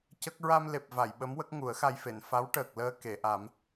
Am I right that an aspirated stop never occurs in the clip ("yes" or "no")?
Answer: yes